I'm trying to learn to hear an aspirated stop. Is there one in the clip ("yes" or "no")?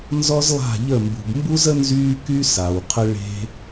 yes